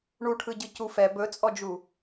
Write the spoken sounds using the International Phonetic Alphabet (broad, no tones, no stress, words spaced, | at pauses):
ɳuʈʰɯɟɯcu fɛ bɵt͡sʼɔd͡ʒu